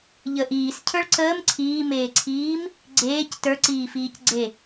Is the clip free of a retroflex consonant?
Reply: no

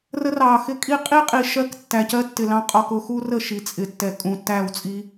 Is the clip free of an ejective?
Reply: no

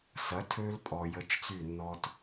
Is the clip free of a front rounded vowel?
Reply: no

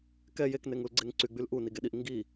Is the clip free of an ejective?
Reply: yes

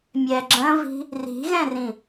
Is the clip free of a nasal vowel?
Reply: no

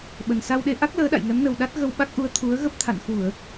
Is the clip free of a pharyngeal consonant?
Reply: yes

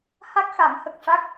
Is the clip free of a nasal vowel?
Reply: yes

